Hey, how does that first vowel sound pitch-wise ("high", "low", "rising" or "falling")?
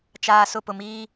low